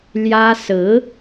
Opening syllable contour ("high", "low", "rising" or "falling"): high